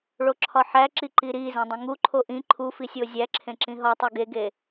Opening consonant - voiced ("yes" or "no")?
yes